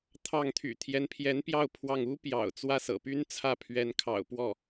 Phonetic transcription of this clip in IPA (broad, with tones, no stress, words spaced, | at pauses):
t̪ʰɑ˥˩ŋ t̪ʰy̰˨˩ t̪ʰjɛ˧˥npʰjɛ˧˥npjɑ˥˧ʊ̯ pʰwɑ˥˩ŋ u˥ pjɑ̰˨˩ʊ̯ t͡swä˥˩sɤ̰˨˩py˥n t͡sʰä˥˩pʰɥɛ˧˥nkʰɑ̰˨˩ʊ̯pwɔ˥˩